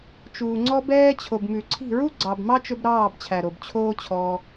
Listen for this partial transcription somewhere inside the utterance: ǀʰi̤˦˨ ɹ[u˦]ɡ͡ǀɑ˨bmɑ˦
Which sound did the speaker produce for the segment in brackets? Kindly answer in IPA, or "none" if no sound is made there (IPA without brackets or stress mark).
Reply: u˦